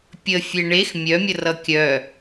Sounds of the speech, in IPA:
pʲ ə fʲ e ɳ e x mʲ œ mʲ ə r ʌ kʲ œ

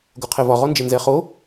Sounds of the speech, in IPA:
ɡ o qʰ e v ɒ ʁ ɔ n d͡ʒ e n z ɛ χ o

